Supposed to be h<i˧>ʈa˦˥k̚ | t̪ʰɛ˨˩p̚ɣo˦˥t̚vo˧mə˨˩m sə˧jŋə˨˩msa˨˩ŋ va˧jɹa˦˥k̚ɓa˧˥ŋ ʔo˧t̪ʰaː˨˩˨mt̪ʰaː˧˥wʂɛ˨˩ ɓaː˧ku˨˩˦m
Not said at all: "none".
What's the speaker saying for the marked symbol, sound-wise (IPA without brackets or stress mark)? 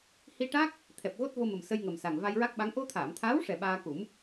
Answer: i˧